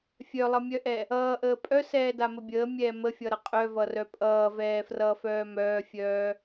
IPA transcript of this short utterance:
fʲ œ lˠ ʌ mʲ œ ʔ ɛ | ʌː ʔ əː pʼ œ s ɛː d a m ə bʲ əː mʲ ɛː m ə fʲ ʌ ɾ ʌ qʼ œ v ʌ r œ pʼ ʌː v ɛː f r ʌː f œː m œː fʲ œː

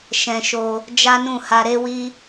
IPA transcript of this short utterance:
ʃ ɛ̃˧ ʃ o˧ | d͡ʒ a˦ n ũ˦˨ h a˧ ɾ e˦ w i˦

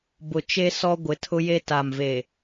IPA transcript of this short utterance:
b ʊ˨ t͡ʃ e˦ s ɔ˦ ɡʷ ɪ˨˦ tʰ ʊ˦ j e˦ t a˨ m v e˨

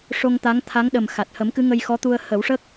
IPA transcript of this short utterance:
ʂ o˧ ŋ t̪ a˧˥ ŋ t̪ʰ a˧˥ ŋ ɗ ə˨˩ m x a˨˩ t̚ h ə˨˩˦ m k ɨ˧˥ ŋ ə˧ j x ɔ˧˥ t̪ u˧ ə̯ h ə˨˩˦ w ʂ ə˦˥ k̚

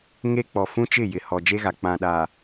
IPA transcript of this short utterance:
ŋ e˦ k͡p ɔ˨ f ũ˦ t͡ʃ ɪ˦˨ j ɪ˨ h ɔ˨ d͡ʒ e˦ ɣ a˨ k͡p ã˨ ɗ a˨

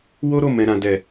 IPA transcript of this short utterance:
w o˦ ɾ o˦˨ m ɛ̃˨ ɾ ã˨ d ɛ˨

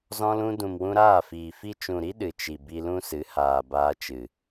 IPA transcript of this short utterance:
z ɔ̃˧ l ũ˧ d ũ˨ m w ũ˧ ɾ aː˦˨ f iː˨ f i˦ t͡ʃ ũ˨ ɾ i˦ ɗ ɨ˨ t͡ʃ i˨ b i˧ l ũ˦ s ɨ˨˦ h aː˨ b aː˧ t͡ʃ ɨ˨

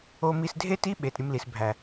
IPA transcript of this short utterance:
o˧ m i˧ s dʱ e˦ t i˦ ɓ e˨ t ɾʲ ɯ˧ m l i˨ s bʱ æ˨

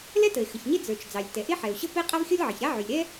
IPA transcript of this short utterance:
l ɛ˥ t ə˩ e̯ x ə˩ ç ɲ e˥ d͡z ə˞˩ t͡ʃ d͡z ɑ˩ lʲ t ɛ˩ ʔ e˥ ħ ɛ˩ o̯ ɕ ə˥ p e˥ qʼ a˥ v xʲ ɔ˥ lʲ ʕ ə˩ ç ɾ a˥ ʕ y˩ lʲ ɾ ɛ˥

